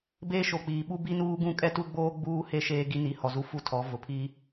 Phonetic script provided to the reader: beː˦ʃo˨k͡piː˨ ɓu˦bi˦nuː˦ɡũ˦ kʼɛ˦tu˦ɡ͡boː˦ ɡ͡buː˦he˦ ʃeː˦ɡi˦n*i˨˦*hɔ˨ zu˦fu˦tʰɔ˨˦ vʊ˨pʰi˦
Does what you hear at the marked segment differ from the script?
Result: no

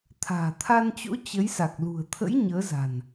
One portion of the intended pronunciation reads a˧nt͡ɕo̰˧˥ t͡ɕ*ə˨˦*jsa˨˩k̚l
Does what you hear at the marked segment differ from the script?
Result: no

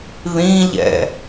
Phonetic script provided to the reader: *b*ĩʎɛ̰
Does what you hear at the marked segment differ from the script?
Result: yes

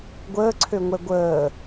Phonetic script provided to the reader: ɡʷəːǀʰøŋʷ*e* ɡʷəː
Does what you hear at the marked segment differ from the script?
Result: yes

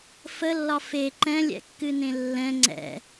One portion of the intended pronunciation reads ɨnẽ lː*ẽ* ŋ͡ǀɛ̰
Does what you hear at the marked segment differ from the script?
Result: yes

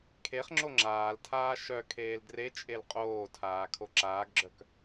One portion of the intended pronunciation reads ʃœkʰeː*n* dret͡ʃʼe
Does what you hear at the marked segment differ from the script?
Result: yes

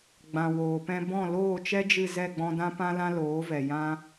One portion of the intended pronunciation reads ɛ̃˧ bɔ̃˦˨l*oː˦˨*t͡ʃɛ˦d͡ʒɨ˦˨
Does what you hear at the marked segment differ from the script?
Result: no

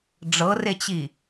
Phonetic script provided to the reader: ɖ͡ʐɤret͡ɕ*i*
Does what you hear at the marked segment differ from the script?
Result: no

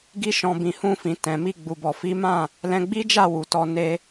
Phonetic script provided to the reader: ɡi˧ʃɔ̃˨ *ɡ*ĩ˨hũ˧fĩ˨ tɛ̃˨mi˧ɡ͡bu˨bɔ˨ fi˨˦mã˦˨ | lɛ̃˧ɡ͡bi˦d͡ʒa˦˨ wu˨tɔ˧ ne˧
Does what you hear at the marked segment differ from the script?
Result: yes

